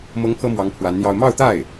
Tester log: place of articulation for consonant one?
labial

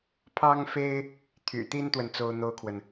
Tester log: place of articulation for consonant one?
labial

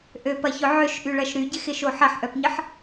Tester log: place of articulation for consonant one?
glottal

